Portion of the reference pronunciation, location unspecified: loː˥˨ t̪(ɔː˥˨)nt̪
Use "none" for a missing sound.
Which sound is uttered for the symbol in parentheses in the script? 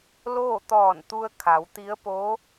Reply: ɔː˧˩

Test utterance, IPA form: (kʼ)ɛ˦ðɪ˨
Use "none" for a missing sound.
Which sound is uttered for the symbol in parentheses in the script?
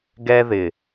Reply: ɡ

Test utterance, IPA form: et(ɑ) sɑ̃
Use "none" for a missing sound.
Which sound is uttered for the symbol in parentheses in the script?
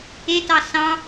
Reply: ɑ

